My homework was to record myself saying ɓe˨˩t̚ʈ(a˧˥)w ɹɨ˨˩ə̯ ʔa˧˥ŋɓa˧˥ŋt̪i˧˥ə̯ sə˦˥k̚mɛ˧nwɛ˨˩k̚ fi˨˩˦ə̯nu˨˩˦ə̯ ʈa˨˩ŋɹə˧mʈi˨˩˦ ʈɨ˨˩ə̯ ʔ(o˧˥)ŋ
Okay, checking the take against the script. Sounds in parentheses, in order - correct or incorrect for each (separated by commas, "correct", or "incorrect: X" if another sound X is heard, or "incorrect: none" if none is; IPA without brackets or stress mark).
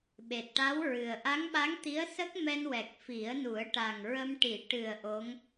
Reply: correct, correct